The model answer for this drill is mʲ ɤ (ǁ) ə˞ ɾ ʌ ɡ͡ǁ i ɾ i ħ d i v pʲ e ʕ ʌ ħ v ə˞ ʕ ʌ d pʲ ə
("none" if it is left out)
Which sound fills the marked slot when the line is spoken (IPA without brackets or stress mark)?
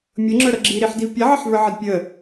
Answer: ŋ͡ǁ